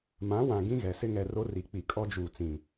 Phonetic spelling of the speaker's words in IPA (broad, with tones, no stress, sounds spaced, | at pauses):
m ã˨˦ w ã˨ ɡ ĩ˦ ɣ ɛ˨ s ɪ˦ ŋ ɛ˨ r o˦ r i˨ k͡p i˨ kʼ ɔ˦ d͡ʒ uː˨ t͡s ĩ˨